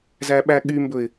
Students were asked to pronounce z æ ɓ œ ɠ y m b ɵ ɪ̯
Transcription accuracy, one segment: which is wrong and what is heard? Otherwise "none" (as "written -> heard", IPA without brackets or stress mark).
œ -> æ